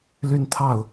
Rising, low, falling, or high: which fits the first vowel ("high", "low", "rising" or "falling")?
falling